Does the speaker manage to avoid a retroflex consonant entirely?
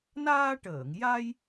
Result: no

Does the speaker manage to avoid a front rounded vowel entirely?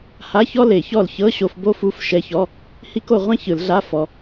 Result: yes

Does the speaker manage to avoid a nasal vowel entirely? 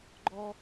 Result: yes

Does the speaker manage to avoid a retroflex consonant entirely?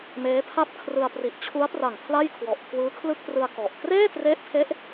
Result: yes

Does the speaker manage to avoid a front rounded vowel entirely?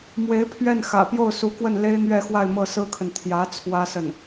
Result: yes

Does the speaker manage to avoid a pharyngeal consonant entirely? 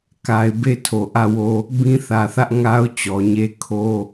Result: yes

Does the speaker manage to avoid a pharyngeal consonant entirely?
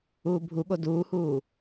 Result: yes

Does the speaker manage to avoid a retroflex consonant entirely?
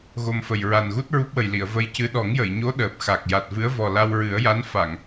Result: yes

